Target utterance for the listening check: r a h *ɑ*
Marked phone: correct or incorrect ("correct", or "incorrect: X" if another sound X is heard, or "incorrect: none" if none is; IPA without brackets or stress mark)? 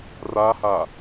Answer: incorrect: a